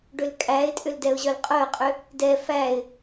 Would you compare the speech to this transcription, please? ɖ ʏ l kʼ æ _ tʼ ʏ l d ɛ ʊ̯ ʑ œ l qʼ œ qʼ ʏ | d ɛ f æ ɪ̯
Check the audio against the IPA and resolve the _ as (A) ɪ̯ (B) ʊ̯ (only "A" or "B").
A